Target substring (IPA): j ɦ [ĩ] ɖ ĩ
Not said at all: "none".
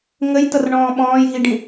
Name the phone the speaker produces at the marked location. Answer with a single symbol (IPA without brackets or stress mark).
i